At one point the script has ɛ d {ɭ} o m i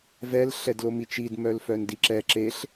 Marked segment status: incorrect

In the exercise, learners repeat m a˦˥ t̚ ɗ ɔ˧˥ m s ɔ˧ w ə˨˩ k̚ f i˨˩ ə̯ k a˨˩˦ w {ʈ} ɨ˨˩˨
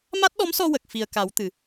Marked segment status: incorrect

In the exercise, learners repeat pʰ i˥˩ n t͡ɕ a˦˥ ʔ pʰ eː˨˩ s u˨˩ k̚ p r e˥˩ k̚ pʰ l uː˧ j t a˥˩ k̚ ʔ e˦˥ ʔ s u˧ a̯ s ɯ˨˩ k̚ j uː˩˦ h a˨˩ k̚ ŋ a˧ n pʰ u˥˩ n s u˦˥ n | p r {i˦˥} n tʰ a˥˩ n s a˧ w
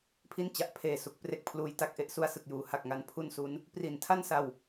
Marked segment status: incorrect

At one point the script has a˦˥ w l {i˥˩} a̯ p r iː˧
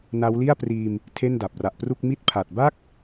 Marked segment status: correct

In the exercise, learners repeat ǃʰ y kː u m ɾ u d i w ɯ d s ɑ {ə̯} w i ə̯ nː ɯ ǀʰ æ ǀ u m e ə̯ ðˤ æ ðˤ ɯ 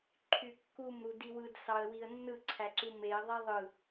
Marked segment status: correct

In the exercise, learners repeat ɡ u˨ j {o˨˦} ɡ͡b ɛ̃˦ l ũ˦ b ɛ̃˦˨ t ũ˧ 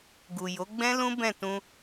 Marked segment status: correct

